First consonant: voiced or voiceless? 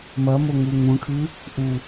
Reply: voiced